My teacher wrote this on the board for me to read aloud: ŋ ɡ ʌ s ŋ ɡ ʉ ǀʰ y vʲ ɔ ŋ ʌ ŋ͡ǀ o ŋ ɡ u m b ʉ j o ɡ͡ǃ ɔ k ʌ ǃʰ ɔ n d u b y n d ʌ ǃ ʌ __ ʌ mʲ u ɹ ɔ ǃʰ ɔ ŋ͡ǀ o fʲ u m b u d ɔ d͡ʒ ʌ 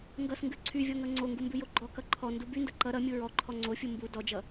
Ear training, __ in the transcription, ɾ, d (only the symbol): ɾ